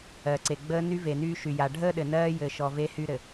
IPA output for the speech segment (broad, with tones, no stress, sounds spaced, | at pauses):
ɜ˨ ǀ e˨ ɡ͡b əː˦ n y˦ v e˨ n yː˦ ʃ y˨ j a˨ ɖʱ əː˦ ɗ ɘ˨ n ɜː˦ j ɘ˨ ʃ ɔ˨ v e˦ h y˦ ɾ ɘ˨